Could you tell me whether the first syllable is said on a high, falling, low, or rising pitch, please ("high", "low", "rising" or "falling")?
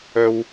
high